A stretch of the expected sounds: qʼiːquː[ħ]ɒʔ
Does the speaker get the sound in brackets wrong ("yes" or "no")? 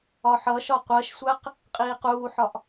no